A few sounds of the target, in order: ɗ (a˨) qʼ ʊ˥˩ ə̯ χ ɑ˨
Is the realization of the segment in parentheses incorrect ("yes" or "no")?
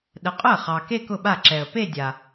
yes